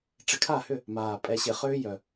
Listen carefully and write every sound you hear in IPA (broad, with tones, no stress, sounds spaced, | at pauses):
ʈ͡ʂ ɪ˧ kʰ a˥˨ h ʏ˥˨ | m aː˨˩ pʼ ɛ˧ ɕ ɪ˧˩˧ χ ʏː˦˥ j œ˨˩